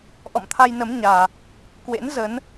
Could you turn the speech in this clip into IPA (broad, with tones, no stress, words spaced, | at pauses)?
ʔɔ̰˧˨mt̪ʰa˧jnə˨˦mɲaː˨˩ | kwḛ˧˥n zə˨˦n